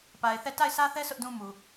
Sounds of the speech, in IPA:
pa˨ɪ̯θɛ˦˨ ta˦˨ɪ̯sä˦θɛ˦ sʰʊ˦ʔdũ˦mu˨

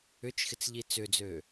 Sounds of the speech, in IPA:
ʏt͡ʃxɪt͡sʎi t͡sʏd͡zø

